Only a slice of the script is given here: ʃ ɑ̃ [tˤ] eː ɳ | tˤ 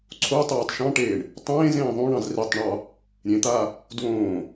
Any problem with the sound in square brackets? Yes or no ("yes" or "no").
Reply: yes